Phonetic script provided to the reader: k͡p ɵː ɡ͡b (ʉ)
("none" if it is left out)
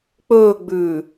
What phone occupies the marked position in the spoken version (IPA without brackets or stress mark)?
ʉː